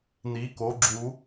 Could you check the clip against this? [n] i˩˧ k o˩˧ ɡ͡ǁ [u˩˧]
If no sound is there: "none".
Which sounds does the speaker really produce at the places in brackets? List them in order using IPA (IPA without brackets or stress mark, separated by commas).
n, u˩˧